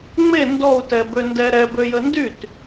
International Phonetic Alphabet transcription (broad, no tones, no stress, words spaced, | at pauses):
ŋ͡me ndɔu̯tɛbøndɛ ɾɛbøjə ndyt